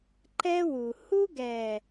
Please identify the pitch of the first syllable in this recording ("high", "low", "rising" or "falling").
high